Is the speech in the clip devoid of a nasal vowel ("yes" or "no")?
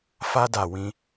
no